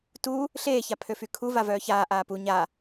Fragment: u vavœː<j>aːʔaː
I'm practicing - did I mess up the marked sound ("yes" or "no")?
yes